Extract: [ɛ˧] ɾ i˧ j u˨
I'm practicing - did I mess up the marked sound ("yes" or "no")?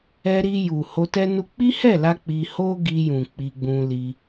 no